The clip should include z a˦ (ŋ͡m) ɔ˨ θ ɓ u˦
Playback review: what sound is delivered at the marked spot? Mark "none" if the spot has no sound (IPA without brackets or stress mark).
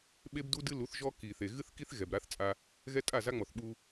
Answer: ŋ͡m